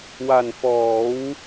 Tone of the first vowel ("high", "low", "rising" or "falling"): low